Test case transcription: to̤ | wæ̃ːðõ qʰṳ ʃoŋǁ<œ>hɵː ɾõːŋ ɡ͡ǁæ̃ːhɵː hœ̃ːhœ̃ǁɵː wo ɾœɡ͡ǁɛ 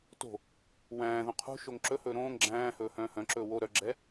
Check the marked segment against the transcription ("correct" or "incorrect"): incorrect